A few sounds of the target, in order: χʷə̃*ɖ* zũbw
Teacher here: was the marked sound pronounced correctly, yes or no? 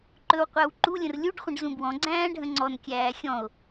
yes